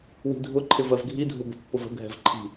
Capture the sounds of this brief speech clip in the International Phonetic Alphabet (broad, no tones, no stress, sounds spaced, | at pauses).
w i̤ dʱ ʊ ǃʰ ɪ v ɜ v ɡʱ i dʱ ʊ b ə̤ pː ʊ v ə̤ ɡʱ ɛ̤ v ǃʰ i̤